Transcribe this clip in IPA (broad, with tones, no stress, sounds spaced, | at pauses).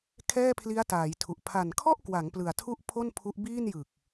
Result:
kʰ ɛː˥˩ pʰ l i˦˥ a̯ t aː˩˦ j tʰ u˨˩ ʔ pʰ a˨˩ n kʰ ɔ˥˩ ʔ k w a˩˦ ŋ p l ɯ˨˩ a̯ tʰ u˥˩ ʔ pʰ o˥˩ n pʰ u˦˥ ʔ b iː˥˩ n j ɯ˨˩ k̚